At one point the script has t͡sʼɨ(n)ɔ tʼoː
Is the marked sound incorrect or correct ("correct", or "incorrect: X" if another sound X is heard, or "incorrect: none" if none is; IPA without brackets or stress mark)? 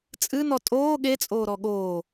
correct